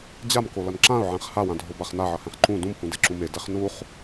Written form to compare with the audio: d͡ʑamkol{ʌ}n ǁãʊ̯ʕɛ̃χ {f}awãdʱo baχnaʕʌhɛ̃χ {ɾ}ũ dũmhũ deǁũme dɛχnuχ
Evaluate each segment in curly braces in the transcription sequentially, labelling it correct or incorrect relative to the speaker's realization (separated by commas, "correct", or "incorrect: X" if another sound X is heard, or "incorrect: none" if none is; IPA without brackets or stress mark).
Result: correct, incorrect: h, incorrect: ǃ